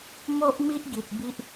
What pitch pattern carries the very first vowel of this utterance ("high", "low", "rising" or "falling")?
high